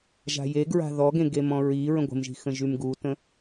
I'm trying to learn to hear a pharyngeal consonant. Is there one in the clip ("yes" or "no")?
no